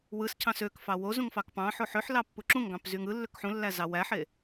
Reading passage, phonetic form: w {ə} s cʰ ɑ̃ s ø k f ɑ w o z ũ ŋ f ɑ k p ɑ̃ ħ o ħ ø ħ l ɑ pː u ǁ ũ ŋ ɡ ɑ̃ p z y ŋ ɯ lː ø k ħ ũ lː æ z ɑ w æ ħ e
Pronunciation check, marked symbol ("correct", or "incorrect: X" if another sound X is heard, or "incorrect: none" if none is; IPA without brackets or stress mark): incorrect: ɯ